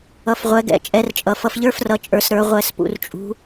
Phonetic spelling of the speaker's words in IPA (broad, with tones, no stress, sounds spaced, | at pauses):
ʌ˩˧ f ʁʷ ɛ˩˧ ɡ ɛ̰˩ t͡ʃʼ ɛ˩˧ r t͡ʃʼ ʌ˩ f ʌ˩˧ f ʎ ə˞˧˥ f r ʌ˩˧ t͡ʃʼ ə˞˩˧ s ɾ ə˞˩˧ ʁʷ ɛ˧˩ s p ṵ˩˧ r t͡ʃʼ ṳ˧˥